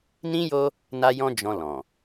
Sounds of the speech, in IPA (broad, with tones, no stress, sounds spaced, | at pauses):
n ĩ˦ j o˦ | n a˦ j ɔ̃˦ d͡ʒ ɔ̃˧ l ɔ̃˨